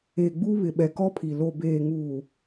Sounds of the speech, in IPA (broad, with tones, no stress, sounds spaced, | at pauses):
e˨ ɡ͡b u˦ β ɪ˨ ɓ ɛ˨ k ɔ˦ pʰ i˨ l o˨ b eː˨ ŋ uː˨